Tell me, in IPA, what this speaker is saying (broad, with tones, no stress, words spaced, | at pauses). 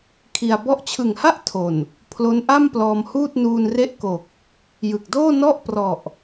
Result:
kʰi˧a̯ bɔ˦˥ʔt͡ɕʰɯ˨˩ŋha˥˩ʔ tʰo˨˩n | pʰlo˦˥nʔa˥˩m plɔː˧mhuː˥˩t̚nuː˧nre˥˩ʔ ko˨˩k̚ | jɯ˨˩k̚doː˥˩nɔ˥˩ʔ prɔ˨˩ʔ